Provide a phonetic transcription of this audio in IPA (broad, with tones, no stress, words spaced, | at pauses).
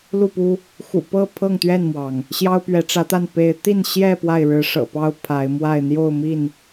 lu˥˨pu˦ | xṵ˨˩pɤ˥˨ pʰɤ˥˨ŋt̪ɥɛ˥˨nmwɑ˩ŋ | ɕjɑ˦ʊ̯pɥɛ˨˦ʈ͡ʂä˨˦t̪a˥˨n pe˨˦ɪ̯ t̪i˥˨n ɕjɛ˥˨ pwa˥˨ɪ̯ɻɻ̩˨˦ʂɤ̰˨˩pɑ˦ʊ̯ pʰa˨˦ɪ̯ mwa˥˨ɪ̯ n̪jo˥˨ʊ̯mi˥˨n